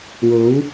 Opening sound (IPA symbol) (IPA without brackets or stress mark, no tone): w